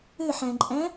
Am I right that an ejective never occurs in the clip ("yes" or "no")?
no